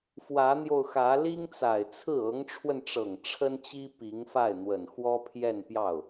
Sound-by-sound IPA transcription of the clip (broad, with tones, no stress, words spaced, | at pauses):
fwä˧˥n̪jo˧ʊ̯xä˧˥ li˥ŋt͡sa˨˩ɪ̯t͡sʰɹ̩˥˩ ɤ˧˥ŋʈ͡ʂʰwə˧nʈ͡ʂɤ˨˩ŋ ʈ͡ʂʰə˥nt͡ɕi˥ pi˧˥ŋ fa˥˩ɪ̯n̪wə˨˩n xwɔ˥pʰjɛ˥˧npjɑ˥˩ʊ̯